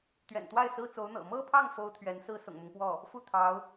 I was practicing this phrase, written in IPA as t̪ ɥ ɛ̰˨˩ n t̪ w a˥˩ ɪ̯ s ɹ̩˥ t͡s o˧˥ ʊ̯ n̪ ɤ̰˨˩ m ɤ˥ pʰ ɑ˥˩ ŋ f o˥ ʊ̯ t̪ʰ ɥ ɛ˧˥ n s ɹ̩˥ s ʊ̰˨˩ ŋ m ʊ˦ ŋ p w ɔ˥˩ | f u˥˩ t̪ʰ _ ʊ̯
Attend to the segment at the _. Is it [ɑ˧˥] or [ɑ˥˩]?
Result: ɑ˧˥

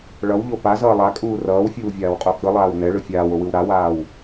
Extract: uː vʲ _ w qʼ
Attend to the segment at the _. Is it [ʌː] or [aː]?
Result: aː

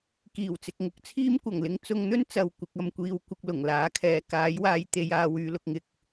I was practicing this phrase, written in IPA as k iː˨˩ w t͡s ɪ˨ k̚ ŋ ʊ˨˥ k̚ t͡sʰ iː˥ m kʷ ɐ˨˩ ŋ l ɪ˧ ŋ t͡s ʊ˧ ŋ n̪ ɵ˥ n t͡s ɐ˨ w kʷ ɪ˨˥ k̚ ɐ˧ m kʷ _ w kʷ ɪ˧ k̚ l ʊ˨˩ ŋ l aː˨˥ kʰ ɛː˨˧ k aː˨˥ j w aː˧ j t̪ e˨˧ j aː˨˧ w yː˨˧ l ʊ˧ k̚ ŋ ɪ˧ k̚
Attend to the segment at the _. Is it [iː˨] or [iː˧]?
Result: iː˧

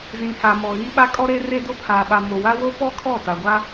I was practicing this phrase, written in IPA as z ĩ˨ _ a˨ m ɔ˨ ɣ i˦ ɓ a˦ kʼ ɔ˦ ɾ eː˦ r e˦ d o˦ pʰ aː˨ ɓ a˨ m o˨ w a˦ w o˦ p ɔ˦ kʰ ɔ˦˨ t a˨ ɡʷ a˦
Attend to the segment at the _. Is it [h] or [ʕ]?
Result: h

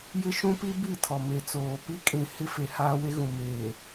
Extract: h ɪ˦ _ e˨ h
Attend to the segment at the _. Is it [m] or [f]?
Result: f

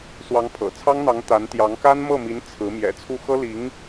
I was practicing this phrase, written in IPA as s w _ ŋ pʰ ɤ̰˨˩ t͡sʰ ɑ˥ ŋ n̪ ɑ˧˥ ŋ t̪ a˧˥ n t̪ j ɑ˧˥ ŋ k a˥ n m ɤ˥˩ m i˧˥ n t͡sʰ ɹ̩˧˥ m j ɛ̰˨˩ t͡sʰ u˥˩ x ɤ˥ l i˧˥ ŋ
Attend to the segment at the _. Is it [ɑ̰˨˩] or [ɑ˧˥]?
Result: ɑ˧˥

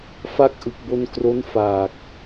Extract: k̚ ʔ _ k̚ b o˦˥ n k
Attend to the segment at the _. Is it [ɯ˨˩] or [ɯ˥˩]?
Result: ɯ˨˩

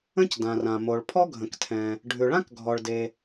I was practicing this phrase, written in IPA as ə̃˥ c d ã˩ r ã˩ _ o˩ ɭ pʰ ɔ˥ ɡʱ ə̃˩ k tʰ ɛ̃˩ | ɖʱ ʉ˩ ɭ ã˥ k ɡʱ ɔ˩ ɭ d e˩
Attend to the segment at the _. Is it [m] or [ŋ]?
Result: m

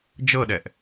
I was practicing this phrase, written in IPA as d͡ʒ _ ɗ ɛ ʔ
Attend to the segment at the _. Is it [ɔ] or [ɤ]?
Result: ɤ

